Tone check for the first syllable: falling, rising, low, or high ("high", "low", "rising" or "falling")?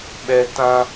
high